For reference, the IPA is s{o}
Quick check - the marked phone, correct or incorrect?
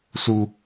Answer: incorrect